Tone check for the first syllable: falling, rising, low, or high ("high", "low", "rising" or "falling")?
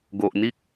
low